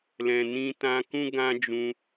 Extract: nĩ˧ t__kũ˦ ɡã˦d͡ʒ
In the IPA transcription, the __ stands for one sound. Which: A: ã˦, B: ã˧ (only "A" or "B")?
B